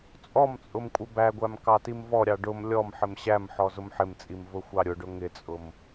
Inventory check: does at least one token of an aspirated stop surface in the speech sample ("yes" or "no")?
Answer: no